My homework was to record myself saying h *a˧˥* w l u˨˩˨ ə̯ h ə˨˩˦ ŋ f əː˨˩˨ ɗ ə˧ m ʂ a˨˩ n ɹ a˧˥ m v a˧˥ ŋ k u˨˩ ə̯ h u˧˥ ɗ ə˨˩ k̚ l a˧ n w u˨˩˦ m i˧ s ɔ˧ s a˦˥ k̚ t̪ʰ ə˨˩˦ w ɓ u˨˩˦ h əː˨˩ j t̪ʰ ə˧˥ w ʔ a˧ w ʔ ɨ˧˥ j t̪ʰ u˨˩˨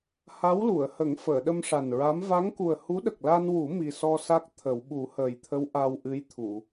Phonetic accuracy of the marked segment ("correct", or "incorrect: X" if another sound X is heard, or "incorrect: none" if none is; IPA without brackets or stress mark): correct